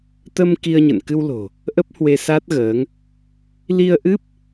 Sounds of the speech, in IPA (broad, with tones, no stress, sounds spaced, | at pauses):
t̪ ə˧ m k i˧ ə̯ ɲ ə̰˧˨ n k ɨ˧ w l o̤˨˩ | ʔ ə˦˥ p̚ h w e˧ s a˦˥ t̚ ɣ əː˨˦ ŋ | l i˧ ə̯ ʔ ɨ˦˥ p̚